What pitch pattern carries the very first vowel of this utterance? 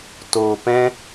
low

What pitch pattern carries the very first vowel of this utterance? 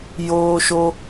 high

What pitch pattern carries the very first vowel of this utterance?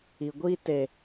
low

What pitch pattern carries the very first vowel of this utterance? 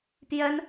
high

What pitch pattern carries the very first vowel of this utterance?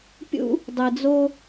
high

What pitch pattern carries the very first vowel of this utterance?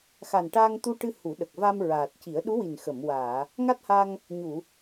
low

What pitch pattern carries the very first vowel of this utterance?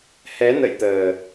rising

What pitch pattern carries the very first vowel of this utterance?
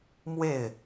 falling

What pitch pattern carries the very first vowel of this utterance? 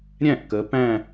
falling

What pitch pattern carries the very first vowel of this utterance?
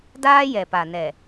high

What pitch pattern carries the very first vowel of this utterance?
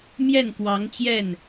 falling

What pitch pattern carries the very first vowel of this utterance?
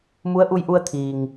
rising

